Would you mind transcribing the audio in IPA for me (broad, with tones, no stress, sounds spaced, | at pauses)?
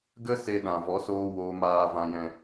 ɡ ə˦ s e˧ ɗ ã˨ v ɔ˨˦ s oː˧ w oː˧ m aː˧ v ã˧ j ɛ̃˧